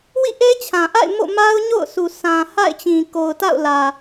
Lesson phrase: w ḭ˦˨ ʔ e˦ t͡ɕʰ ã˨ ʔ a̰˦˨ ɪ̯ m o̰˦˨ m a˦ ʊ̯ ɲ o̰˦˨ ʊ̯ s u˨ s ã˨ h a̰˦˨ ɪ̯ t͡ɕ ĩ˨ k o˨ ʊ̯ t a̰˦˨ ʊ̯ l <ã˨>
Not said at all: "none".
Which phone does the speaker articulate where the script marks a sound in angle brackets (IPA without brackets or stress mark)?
ä˨